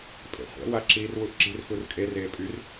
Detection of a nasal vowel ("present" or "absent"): absent